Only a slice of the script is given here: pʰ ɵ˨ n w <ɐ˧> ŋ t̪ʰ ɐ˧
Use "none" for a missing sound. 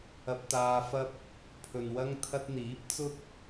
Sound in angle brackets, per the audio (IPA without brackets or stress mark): ɐ˧